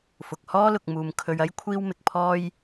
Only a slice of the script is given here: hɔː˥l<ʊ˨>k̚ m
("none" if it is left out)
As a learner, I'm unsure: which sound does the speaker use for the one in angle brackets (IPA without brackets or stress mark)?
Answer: ʊ˨